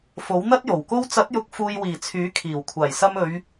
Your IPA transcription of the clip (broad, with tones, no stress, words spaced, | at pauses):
fo˨˥wn̪ɐ˥t̚jo˨˩wko˥w t͡sɐ˨˥t̚jʊ˨˥k̚ fuː˨jwiː˨˩ t͡sʰyː˨˥kʰiː˨˩w kʷʰaː˨˩jsɐ˧mɵ˨˧ɥ